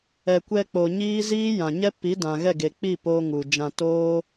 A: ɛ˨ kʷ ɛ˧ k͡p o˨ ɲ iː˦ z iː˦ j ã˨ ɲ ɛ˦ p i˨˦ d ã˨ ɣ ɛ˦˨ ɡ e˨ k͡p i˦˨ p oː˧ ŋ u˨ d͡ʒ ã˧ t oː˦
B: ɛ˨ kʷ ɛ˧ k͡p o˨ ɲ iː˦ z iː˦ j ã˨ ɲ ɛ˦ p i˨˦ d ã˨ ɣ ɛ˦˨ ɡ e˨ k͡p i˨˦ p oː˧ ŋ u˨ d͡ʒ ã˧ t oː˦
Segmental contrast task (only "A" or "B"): A